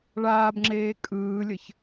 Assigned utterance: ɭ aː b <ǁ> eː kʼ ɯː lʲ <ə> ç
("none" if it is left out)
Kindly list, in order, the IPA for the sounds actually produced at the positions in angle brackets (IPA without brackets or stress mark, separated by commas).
ŋ͡ǁ, ə